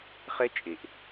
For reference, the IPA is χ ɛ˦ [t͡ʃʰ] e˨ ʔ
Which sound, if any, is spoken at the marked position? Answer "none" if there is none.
t͡ʃʼ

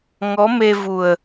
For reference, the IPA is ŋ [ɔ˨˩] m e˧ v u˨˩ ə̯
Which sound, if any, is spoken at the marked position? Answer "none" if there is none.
ɔ˧˥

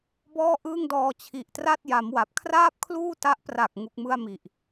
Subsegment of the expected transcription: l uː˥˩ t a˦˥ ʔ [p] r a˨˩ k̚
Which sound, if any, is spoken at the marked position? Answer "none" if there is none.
p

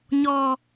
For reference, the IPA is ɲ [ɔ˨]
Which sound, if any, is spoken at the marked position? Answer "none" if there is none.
ɔ˨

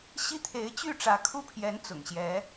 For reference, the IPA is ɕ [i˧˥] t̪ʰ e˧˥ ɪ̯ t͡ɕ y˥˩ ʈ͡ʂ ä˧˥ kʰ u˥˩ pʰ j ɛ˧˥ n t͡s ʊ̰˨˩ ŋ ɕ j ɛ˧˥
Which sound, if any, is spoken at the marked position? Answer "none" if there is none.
i˥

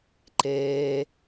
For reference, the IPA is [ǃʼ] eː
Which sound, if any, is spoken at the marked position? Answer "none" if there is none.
ǃ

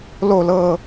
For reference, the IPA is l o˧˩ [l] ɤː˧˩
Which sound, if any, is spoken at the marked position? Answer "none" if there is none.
l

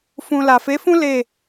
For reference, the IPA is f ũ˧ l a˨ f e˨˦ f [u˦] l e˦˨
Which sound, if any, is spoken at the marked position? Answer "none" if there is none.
ũ˦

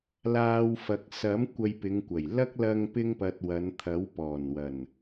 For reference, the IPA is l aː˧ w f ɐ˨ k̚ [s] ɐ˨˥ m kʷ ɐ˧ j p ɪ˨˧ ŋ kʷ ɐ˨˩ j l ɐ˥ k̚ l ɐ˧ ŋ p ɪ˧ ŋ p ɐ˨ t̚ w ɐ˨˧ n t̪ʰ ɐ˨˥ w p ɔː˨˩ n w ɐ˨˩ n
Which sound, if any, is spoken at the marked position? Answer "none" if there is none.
s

